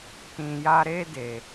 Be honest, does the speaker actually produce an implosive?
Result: no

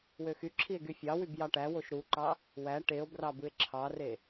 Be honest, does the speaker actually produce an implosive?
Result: no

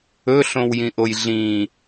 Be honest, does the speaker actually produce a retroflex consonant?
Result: no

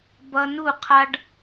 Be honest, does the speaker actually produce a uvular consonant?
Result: yes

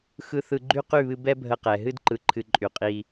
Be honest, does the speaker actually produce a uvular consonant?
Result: yes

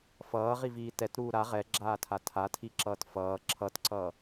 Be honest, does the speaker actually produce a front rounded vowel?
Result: no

